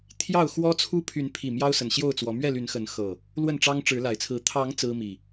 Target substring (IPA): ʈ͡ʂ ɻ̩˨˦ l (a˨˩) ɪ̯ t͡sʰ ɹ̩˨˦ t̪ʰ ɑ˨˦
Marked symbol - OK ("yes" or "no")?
yes